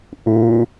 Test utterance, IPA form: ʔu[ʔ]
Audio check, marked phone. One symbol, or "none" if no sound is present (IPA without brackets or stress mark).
none